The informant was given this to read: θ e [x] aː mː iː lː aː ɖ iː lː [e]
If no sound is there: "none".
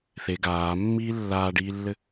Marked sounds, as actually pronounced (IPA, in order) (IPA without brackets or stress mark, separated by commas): ɡ, ɘ